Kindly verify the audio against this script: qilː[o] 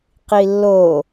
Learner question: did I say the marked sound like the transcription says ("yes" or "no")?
yes